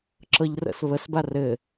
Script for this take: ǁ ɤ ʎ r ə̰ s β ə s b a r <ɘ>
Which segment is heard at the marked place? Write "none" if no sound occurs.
ɘ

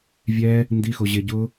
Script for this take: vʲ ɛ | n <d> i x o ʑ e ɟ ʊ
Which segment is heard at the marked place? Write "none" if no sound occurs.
d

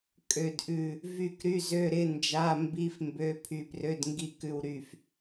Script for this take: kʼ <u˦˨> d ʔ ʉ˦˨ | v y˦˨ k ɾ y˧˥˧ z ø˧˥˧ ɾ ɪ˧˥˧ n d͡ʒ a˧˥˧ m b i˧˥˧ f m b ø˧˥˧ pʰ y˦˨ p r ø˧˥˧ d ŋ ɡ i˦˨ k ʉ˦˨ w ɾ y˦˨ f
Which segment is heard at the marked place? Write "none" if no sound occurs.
ø˦˨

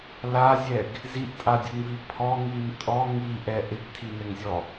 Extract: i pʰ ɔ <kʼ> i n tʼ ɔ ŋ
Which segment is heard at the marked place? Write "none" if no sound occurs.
ŋ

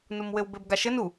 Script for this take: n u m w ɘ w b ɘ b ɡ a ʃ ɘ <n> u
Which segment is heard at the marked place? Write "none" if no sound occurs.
n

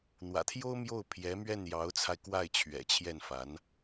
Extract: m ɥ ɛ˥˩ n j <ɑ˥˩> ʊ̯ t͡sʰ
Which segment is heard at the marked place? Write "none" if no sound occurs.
ɑ˧˥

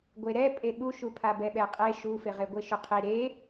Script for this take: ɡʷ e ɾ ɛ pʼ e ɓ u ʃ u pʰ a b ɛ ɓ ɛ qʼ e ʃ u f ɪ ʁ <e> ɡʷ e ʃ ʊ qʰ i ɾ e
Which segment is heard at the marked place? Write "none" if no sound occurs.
e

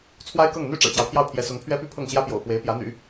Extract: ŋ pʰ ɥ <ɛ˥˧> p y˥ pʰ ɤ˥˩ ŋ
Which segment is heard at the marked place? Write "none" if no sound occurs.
ɛ˥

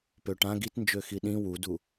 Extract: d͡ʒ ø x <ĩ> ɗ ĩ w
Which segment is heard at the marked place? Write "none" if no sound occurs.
i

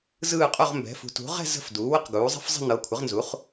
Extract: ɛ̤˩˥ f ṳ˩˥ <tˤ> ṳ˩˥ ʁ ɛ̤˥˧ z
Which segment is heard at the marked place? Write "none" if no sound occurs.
t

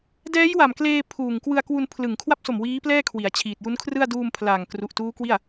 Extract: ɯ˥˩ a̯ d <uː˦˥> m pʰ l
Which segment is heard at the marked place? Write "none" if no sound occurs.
uː˧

